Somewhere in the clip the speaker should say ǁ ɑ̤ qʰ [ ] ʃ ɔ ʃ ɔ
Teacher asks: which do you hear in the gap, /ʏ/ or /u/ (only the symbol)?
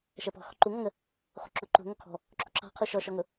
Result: u